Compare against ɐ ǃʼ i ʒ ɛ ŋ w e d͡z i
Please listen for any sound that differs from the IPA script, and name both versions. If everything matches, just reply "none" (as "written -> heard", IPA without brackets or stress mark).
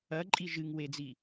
ɛ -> ɨ